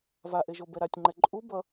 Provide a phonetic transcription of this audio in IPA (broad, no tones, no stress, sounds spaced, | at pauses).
v a ʔ e ʒ o b ɛ ɾ a tʲ ŋ͡ǃ ɛ ǃʼ u b ʌ